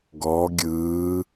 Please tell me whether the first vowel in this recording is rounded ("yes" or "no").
yes